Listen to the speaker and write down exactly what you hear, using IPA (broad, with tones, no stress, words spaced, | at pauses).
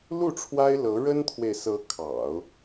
lu˥˩ʈ͡ʂʰwa˥ɪ̯ lɤ˧˥ ɻə˥nt̪ʰwe˨ɪ̯sɤ˧˥ kʰɑ̰˨˩˦ʊ̯